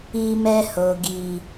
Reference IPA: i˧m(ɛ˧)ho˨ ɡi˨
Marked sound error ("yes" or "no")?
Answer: no